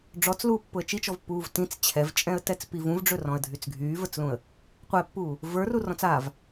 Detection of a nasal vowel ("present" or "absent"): present